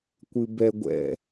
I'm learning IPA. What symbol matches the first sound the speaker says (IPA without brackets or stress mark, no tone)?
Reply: kʷ